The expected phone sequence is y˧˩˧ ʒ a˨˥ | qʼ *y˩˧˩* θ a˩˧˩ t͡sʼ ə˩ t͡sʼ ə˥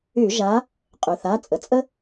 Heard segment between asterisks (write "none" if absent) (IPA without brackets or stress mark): y˩